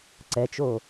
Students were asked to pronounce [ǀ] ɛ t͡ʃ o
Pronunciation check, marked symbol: correct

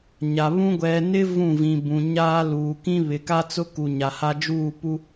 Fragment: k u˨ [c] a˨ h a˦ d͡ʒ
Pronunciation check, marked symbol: incorrect: ɲ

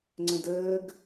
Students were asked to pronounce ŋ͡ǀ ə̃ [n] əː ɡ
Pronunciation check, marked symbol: incorrect: d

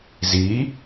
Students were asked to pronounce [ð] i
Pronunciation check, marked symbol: incorrect: z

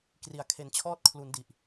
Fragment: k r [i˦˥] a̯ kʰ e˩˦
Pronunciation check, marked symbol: incorrect: i˨˩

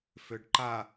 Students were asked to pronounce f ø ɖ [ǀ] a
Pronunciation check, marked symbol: incorrect: ǃ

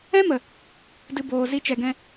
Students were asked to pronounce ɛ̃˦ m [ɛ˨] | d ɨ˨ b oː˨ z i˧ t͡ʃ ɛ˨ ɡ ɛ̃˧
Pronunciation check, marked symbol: incorrect: ə˨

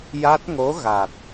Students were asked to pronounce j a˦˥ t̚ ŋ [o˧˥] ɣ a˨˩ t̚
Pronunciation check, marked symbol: correct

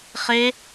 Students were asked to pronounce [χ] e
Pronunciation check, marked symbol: correct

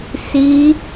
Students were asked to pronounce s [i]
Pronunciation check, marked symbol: correct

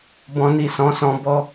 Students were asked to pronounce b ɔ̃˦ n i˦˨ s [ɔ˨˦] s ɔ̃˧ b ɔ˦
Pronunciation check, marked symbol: incorrect: ɔ̃˨˦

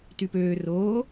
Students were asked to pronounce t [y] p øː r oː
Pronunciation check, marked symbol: correct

